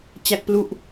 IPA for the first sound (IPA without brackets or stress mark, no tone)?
t͡ɕ